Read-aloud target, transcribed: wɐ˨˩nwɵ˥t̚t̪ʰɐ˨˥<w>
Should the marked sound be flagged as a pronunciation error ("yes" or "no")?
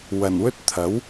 no